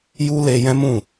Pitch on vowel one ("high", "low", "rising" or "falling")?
high